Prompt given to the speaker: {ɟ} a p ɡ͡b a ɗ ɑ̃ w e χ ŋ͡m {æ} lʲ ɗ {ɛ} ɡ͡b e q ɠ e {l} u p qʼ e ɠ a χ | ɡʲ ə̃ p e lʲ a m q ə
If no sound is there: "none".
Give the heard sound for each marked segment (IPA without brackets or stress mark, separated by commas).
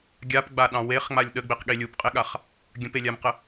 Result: ɡʲ, a, ə, lʲ